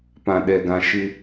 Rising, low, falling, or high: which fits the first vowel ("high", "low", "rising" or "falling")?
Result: low